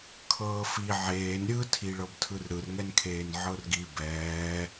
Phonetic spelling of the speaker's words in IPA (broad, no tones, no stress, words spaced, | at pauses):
kʰɤːfi ʕeːn ɾʲɯ tʰiɭɤbtʰɯrɾɯr ŋɛnkʰeːnʕɤrɡi bɛː